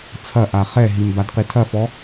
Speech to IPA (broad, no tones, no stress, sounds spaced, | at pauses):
t͡sʰ ɐ ʔ a χ ɛ ɦ i m b a d q i tʰ ɐ f ɔ